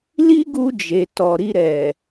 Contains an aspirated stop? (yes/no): no